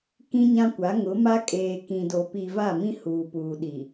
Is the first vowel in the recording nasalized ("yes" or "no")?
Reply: yes